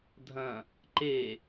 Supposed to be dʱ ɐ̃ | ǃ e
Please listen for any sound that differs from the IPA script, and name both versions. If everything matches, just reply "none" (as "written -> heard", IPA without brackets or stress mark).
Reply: none